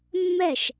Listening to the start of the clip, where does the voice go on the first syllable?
falling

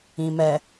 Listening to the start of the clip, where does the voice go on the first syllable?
low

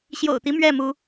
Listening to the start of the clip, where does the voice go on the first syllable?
low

